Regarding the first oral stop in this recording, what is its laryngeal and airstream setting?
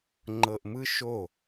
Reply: click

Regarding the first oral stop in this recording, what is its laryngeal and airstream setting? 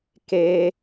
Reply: plain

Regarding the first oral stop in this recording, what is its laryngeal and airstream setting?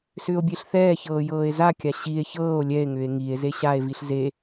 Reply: plain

